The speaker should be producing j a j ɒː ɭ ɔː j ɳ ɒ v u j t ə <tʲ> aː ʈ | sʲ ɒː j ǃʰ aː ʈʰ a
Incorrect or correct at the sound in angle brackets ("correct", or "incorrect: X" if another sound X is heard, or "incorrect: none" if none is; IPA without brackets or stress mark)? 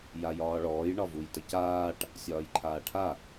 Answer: incorrect: c